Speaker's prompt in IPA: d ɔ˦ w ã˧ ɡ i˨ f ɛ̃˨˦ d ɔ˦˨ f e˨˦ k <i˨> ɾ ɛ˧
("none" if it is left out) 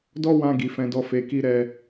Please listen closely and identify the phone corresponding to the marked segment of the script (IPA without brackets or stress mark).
i˦